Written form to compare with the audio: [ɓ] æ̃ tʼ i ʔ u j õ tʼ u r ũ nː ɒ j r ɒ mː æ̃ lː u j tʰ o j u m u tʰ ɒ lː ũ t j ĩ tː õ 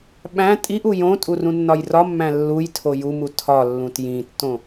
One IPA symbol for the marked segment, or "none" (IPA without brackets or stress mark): ɓ